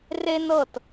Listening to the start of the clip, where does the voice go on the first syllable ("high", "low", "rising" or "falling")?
high